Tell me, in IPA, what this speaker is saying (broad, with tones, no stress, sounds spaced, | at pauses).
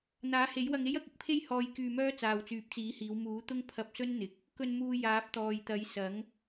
n̪ aː˨˥ h e˨˥ j w ɐ˧ ŋ e˥ j ɐ˨˥ k̚ ɪ˨ k̚ pʰ e˥ j h ɔː˧ j k yː˧ m œː˥ t͡s aː˨ w t͡s yː˨˥ p̚ t͡s iː˨˥ h iː˨˧ w m uː˨˥ t̪ ʊ˥ ŋ pʰ ɐ˧ p̚ s ɵ˥ n n̪ ɪ˨ k̚ | k ɵ˧ n m uː˧ j aː˨˥ p̚ t̪ ɔː˨ j t̪ ɐ˨˥ j s ɐ˨˥ ŋ